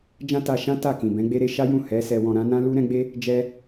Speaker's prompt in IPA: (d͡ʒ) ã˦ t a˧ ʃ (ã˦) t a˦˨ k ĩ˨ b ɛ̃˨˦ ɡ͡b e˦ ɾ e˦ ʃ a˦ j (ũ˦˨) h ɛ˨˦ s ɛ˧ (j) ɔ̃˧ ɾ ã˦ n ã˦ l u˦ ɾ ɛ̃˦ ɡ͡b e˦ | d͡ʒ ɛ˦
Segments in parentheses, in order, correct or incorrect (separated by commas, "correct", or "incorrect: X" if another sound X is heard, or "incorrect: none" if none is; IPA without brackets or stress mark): correct, correct, correct, incorrect: w